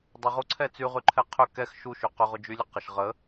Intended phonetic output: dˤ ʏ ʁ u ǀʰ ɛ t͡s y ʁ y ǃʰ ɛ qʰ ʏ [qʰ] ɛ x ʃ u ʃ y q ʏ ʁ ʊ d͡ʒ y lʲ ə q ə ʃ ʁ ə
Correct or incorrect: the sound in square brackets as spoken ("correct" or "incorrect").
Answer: incorrect